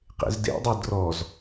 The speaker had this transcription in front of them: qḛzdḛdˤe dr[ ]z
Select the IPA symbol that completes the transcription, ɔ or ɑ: ɔ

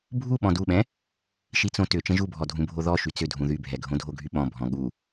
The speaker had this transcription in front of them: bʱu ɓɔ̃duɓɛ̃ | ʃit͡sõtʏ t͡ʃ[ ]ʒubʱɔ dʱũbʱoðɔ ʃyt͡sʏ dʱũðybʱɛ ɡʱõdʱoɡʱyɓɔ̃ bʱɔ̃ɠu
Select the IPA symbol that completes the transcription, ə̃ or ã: ə̃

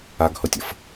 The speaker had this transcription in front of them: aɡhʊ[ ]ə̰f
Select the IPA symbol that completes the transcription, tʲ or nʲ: tʲ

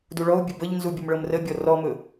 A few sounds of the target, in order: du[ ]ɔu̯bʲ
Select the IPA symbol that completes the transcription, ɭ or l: ɭ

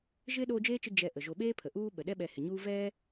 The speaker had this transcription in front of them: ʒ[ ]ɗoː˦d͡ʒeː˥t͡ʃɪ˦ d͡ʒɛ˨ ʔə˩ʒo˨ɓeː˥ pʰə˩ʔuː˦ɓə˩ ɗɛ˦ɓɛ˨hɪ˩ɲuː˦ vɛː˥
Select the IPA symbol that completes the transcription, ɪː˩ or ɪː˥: ɪː˥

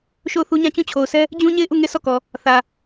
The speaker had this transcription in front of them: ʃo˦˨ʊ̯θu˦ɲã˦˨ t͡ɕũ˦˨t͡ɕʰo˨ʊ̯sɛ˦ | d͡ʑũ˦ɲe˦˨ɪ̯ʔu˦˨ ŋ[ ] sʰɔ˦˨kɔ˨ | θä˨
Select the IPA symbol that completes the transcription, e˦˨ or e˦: e˦˨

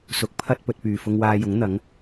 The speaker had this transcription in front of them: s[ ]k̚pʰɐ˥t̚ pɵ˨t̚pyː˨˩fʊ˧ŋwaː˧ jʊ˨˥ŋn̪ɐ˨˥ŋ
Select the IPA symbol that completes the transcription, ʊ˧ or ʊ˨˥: ʊ˨˥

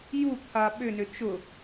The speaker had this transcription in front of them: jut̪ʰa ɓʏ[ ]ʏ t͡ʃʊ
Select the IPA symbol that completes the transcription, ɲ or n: n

